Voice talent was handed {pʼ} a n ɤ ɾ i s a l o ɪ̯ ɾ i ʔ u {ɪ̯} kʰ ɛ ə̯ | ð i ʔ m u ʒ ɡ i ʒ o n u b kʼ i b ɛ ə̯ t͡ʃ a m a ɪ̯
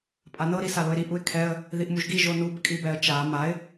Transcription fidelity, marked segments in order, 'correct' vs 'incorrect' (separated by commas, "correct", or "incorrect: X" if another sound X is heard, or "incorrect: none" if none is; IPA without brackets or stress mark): correct, correct